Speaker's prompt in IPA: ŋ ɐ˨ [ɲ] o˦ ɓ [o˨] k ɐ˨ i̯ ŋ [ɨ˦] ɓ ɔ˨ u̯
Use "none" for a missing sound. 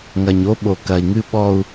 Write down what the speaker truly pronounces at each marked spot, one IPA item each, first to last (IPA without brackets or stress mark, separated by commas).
ɲ, o˨, ɨ˦